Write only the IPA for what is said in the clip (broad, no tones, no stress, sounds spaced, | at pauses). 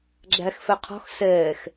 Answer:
ɡ͡ǁ æ x f ɛ qʰ ɔ̤ x s ɛː x